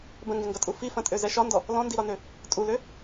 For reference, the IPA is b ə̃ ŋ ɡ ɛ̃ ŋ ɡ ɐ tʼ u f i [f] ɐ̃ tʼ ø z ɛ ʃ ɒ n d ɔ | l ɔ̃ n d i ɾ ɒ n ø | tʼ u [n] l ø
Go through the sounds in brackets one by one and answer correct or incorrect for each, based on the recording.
correct, incorrect: none

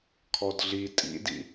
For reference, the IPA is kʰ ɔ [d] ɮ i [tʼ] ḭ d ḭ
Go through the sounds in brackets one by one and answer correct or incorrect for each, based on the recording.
correct, correct

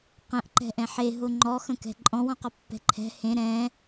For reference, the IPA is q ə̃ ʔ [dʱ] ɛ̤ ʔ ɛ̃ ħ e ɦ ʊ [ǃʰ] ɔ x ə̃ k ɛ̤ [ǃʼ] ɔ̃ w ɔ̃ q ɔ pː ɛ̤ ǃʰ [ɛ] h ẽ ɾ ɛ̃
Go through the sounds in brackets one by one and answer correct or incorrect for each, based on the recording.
incorrect: ǃ, incorrect: ŋ͡ǃ, correct, incorrect: ɛ̤

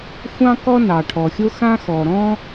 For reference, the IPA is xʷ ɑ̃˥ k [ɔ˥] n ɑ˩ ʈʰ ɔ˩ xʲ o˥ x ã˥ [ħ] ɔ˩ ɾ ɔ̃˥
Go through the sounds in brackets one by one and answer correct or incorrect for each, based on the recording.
correct, incorrect: x

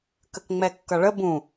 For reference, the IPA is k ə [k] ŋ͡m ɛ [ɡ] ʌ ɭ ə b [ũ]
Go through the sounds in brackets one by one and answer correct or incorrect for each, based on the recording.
correct, incorrect: kː, correct

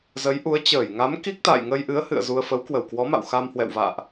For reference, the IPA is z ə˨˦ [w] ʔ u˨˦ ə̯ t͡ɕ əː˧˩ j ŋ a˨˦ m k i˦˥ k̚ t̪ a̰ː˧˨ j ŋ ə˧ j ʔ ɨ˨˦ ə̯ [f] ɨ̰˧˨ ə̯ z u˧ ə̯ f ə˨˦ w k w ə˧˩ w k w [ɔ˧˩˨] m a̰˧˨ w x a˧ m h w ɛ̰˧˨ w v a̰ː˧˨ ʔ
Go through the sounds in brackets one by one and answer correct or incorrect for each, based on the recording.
incorrect: j, incorrect: h, incorrect: ɔ˨˦

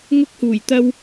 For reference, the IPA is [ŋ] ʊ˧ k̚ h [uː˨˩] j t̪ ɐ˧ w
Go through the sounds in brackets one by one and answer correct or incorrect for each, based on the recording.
correct, correct

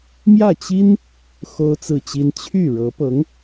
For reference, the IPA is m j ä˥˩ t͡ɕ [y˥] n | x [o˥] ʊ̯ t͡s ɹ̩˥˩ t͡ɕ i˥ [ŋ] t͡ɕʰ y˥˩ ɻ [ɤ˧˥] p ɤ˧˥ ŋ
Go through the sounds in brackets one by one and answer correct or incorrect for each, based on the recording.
incorrect: i˥, correct, incorrect: n, correct

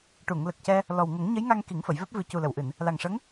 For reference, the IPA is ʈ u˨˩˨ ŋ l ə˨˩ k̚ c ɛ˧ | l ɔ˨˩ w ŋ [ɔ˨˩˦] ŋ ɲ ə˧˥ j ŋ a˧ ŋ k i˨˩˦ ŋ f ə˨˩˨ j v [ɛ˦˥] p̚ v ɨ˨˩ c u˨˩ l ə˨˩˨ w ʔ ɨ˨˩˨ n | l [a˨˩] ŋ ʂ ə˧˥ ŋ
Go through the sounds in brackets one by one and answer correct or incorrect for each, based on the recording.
incorrect: ə˨˩˦, correct, correct

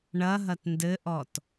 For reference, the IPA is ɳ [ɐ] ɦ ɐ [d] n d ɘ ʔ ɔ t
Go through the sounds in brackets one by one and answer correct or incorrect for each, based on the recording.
correct, incorrect: t

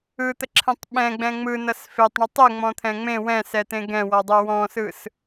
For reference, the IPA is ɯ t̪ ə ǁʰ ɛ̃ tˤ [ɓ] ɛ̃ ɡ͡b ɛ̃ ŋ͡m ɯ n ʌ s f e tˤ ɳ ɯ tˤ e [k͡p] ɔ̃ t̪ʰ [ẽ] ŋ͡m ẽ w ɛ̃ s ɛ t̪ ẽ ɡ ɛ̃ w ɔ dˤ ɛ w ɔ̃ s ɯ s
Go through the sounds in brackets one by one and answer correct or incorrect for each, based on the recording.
correct, incorrect: ŋ͡m, incorrect: ɛ̃

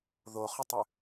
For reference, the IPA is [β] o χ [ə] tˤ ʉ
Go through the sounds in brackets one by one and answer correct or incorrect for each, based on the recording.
incorrect: ð, correct

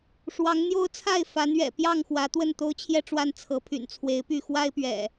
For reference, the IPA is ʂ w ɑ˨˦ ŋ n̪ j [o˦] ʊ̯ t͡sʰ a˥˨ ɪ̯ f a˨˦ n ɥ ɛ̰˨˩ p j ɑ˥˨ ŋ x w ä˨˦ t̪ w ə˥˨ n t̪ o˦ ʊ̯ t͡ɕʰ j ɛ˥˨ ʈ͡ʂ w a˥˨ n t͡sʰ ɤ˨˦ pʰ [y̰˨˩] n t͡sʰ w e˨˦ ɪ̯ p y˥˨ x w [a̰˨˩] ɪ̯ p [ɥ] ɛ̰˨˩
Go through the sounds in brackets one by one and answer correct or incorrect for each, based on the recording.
correct, correct, incorrect: a˦, correct

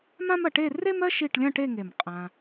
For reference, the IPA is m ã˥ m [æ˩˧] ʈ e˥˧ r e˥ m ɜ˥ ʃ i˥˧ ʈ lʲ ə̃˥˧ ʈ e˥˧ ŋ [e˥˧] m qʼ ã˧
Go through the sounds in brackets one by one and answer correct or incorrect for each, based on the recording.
incorrect: ɐ˩˧, incorrect: e˧˩

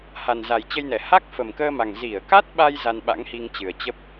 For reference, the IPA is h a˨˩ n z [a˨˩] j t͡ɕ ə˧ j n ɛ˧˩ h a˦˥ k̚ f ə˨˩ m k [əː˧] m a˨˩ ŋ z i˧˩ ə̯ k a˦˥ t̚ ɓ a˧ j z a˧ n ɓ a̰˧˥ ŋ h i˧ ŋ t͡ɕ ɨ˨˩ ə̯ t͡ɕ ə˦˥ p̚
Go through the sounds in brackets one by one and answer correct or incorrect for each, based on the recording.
correct, correct

